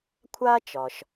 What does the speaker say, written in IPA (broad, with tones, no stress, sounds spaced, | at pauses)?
kʷʰ aː˥ t͡ʃ ɒː˩ ʃ